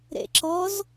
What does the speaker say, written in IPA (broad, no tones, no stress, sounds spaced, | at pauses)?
ɾ ḛ ǁ ɔ z